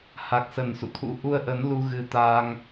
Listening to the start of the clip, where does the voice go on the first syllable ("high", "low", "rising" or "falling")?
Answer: low